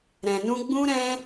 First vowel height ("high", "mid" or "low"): mid